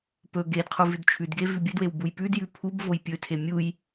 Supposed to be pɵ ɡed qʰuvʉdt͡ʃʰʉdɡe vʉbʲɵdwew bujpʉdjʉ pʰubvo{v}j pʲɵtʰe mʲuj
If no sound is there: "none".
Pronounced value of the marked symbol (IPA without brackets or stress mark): none